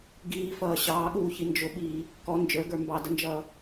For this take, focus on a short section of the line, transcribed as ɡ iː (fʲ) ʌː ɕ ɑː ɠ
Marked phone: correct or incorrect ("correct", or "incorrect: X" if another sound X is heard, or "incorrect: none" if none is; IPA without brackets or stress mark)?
incorrect: f